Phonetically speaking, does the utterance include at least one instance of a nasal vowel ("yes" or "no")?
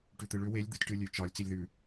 no